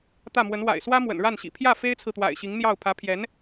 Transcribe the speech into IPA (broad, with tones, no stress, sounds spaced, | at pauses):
t̪ ä˥˩ m w ə˧˥ n w a̰˨˩ ɪ̯ s w ä˥ m w ə̰˨˩ n ɻ a˥˩ n ɕ ḭ˨˩ pʰ j ä˥˩ f e˥ ɪ̯ t͡sʰ ɹ̩˨ t̪ w a̰˨˩ ɪ̯ ɕ i˧˥ ŋ n̪ j ɑ˥˩ ʊ̯ pʰ ä˧˥ pʰ j ɛ˧˥ n